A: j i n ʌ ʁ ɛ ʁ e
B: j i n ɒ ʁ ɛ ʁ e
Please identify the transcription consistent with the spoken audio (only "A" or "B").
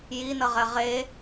A